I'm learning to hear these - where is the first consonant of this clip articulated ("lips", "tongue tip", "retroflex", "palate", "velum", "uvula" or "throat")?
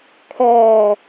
velum